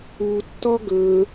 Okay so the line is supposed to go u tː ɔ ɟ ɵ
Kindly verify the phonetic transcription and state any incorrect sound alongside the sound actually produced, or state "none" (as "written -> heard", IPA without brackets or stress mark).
ɟ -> ɡ